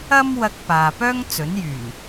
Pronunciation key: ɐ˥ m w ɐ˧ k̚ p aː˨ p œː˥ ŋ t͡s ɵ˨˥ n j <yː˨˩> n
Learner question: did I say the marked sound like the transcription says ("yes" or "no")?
yes